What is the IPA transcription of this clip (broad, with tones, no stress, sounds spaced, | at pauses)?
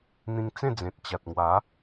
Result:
n̪ ĩ˧ ŋ t͡s ẽ˥˧ d͡z ẽ˨ t̚ t͡ɕ a˨ t̚ ŋ w a˨˦